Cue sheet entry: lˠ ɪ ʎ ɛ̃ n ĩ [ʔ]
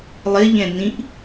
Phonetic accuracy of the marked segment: correct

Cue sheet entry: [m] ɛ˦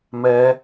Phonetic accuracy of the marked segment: correct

